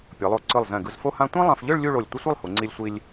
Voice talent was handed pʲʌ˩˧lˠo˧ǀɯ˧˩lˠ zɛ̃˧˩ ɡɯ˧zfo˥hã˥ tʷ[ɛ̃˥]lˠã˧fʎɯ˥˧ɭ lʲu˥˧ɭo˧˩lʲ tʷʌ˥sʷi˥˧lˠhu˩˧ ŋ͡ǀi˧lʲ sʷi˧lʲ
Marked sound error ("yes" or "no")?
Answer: yes